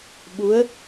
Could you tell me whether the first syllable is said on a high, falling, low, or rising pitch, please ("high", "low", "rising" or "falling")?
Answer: rising